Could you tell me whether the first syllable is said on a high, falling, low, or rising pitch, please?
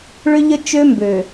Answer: high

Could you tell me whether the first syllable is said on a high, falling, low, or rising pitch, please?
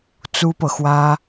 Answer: high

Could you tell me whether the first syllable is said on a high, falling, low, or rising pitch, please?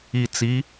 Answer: low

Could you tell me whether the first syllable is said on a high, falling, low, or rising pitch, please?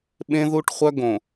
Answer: high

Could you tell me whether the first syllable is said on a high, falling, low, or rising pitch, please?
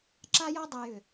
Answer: high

